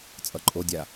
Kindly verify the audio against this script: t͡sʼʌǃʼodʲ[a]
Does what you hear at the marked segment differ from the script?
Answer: no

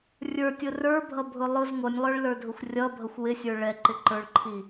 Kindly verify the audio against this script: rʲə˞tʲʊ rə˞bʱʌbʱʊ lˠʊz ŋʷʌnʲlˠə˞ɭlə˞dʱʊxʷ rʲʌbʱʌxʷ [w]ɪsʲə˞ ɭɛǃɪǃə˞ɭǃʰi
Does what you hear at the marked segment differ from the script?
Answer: no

